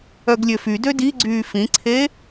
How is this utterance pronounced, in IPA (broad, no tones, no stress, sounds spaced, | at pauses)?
œ ɡ lʲ ø f y d ø d i ɡ͡ǀ yː f ĩ ǀʰ e